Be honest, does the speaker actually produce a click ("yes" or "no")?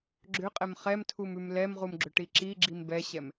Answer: yes